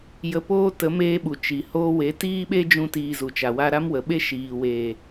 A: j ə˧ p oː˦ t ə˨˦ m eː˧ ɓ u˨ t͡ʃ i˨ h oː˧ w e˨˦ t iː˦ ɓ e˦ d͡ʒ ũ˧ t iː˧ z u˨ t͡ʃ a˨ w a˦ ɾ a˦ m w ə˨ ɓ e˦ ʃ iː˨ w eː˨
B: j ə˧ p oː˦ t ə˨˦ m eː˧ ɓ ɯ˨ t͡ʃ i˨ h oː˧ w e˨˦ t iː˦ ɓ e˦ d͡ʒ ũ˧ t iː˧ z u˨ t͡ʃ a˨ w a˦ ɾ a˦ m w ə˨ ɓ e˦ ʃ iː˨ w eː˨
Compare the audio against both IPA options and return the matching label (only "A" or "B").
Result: A